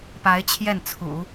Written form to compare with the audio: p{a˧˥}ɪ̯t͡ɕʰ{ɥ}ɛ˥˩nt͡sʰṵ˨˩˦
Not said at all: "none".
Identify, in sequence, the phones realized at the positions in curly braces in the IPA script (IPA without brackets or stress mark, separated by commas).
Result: a˧˥, j